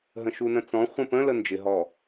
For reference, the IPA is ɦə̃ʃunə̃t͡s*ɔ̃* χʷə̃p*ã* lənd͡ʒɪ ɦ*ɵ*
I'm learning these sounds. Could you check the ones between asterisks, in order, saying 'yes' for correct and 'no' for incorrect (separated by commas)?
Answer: yes, no, no